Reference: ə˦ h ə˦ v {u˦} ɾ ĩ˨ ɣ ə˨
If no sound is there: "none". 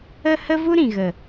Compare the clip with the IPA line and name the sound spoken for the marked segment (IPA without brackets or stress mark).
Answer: u˦